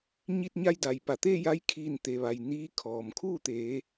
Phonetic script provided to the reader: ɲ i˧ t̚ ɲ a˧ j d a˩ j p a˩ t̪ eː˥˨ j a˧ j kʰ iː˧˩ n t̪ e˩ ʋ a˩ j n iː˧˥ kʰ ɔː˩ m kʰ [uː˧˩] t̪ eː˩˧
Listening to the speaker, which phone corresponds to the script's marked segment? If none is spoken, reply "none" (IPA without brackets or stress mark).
uː˥˨